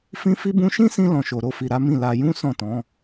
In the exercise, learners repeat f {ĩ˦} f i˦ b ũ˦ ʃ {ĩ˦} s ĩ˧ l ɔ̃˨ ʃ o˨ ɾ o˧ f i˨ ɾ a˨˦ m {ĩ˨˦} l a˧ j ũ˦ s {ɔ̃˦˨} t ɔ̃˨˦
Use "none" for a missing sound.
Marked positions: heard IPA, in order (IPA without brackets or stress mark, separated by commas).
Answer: ĩ˦, ĩ˦, ĩ˦˨, ɔ̃˦˨